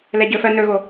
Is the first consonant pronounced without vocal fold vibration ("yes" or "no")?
no